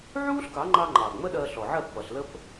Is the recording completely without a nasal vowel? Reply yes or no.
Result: yes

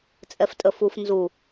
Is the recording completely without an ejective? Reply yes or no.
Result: no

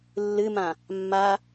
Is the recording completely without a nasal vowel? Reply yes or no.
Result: no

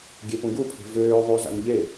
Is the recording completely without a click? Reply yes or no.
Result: yes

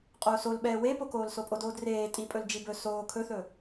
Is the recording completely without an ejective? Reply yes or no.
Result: no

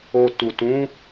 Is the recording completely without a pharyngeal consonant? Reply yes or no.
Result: yes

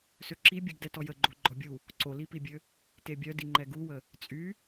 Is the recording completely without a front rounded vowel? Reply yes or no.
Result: no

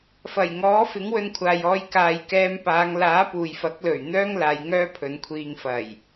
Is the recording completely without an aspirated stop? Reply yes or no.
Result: no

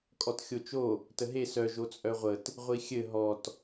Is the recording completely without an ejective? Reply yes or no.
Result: no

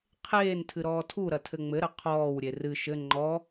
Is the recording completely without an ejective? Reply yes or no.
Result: yes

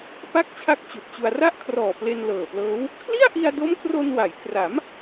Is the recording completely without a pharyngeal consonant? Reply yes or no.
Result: yes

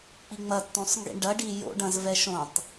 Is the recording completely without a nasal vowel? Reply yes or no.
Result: no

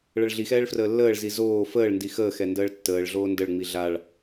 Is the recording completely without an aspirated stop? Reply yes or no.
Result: yes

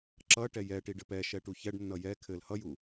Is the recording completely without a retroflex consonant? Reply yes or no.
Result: no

